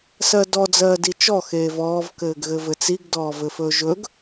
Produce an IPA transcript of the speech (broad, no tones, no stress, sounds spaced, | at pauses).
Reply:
s ɜ d ɔ d͡z ɜː d i t͡ʃ ɔ x eː v ɔː v k ɘː ɡ ɣ ɘ v ɘ t͡s i ɡ d ɔː v ɘ f ɵ ʒ ɵ ɡ